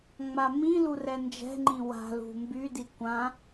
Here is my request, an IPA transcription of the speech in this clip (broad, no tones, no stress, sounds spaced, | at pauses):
ŋ͡m a m ĩ l u r ɛ n d͡ʒ ɛ̤ ŋ͡ǃ ĩ w a̤ l ṳ m b y d i kʷ ã